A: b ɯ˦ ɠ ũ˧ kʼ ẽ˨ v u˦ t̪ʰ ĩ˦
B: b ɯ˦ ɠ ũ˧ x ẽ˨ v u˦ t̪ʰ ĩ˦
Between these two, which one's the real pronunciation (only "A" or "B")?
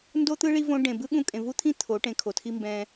A